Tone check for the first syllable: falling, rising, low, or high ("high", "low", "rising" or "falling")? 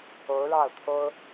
rising